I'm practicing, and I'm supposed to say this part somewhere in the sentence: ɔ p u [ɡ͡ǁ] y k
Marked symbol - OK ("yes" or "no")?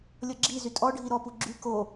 yes